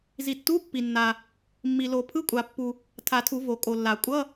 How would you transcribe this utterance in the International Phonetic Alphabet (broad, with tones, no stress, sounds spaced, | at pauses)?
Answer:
z i˨ tː u˧˥˧ pː i˨ nː a˨ | mː i˨ l o˨˩˦ pʰ ɯ˧˥˧ kʷʼ a˨˩˦ pː u˨ | tʰ a˨˩˦ tʰ u˨˩˦ v o˨˩˦ kʼ o˨ lː a˨˩˦ kʷʼ ʌ˧˥˧